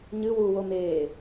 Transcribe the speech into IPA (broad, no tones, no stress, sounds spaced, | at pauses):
ɲ ɨ w u w o m eː